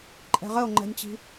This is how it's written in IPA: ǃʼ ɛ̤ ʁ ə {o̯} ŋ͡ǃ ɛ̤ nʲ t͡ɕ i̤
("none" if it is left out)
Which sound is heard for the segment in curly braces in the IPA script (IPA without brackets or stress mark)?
o̯